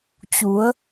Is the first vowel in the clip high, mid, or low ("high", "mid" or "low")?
high